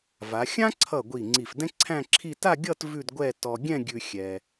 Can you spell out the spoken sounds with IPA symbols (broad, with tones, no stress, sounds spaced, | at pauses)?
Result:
v a˩˧ xʲ ã˥ ǀʰ ʌ˧˩ ɡʷ i˧˩ ŋ͡ǀ i˧˩ f d ɛ̃˥ ǀʰ æ̃˥˧ ǁʰ i˥˧ t a˥˧ ɡʲ ʌ˥˧ t v ʉ˥˧ d ɡʷ ɛ˥˧ t ɔ˧ ɡʲ ɛ̃˥˧ ɡʲ ʉ˧ xʲ ɛ˧